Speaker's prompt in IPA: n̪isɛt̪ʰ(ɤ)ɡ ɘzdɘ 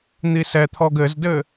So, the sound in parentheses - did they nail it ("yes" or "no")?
no